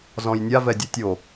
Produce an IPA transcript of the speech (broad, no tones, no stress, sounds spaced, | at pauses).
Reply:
z ɔ̃ j nʲ a v ɛ dʲ ɛ tʲ o